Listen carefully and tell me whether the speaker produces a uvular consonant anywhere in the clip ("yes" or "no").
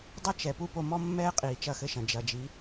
yes